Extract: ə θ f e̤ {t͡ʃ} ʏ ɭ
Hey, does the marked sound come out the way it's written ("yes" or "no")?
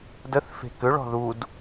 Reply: no